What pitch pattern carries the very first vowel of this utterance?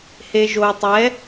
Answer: low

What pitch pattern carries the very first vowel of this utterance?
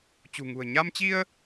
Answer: low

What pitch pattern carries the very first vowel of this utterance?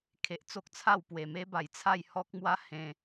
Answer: low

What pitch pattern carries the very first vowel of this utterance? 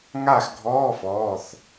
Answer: falling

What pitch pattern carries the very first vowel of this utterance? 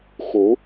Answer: rising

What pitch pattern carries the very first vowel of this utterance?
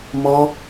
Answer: high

